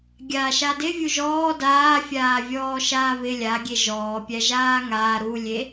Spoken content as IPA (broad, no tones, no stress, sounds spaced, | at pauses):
ɡʲ aː ʃ a d ɪ vʲ u ʒ ɔː d aː fʲ aː vʲ ɔː ʃ aː β ɪ lʲ a ɡʲ e ʒ ɔː pʲ æ ʒ aː ŋ aː ɾ u lʲ e